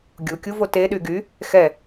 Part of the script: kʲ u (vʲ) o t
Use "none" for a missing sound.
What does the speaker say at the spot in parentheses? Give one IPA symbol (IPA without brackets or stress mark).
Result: v